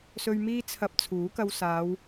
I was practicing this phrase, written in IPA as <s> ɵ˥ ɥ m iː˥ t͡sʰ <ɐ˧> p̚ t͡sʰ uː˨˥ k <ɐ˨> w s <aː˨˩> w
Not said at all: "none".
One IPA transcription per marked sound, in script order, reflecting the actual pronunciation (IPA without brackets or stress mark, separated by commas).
s, ɐ˧, ɐ˧, aː˨˧